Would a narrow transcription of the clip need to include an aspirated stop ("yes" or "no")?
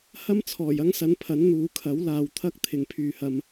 yes